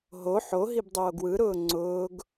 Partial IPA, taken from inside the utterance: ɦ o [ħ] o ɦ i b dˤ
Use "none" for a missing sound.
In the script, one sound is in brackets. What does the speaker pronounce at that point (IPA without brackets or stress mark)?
ħ